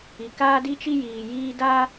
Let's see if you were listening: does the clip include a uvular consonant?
no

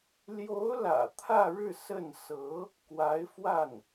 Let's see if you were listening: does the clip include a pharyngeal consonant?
no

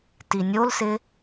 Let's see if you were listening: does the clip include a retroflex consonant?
no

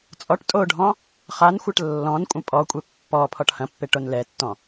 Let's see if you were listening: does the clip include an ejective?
yes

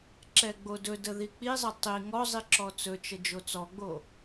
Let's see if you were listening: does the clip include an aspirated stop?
no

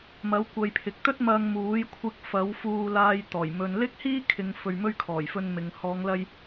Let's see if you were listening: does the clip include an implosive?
no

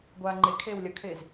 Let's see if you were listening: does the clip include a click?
yes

